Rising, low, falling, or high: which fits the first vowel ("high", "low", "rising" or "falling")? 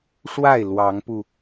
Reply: falling